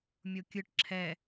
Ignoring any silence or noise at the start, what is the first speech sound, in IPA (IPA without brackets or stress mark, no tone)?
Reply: mʲ